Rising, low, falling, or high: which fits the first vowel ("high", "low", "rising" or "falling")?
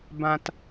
low